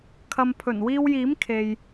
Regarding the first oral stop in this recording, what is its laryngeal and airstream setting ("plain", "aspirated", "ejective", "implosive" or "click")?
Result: aspirated